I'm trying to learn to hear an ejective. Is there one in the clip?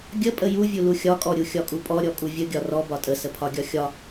yes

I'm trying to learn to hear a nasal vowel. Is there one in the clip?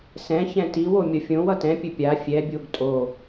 yes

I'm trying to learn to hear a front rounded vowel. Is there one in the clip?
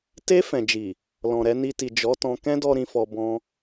no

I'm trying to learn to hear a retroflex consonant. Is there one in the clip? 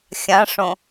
yes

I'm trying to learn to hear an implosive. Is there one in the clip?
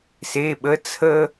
yes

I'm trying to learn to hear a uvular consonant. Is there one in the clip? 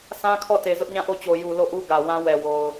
no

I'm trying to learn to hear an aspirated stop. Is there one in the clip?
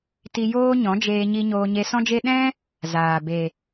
no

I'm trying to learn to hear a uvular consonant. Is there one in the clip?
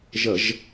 no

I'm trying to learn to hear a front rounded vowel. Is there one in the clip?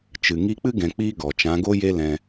no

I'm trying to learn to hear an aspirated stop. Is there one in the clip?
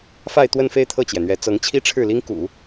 yes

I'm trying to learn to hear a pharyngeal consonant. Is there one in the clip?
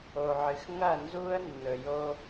yes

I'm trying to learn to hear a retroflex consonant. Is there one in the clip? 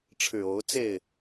yes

